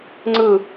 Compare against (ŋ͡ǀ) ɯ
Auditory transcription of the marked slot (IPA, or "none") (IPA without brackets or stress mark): ŋ͡ǀ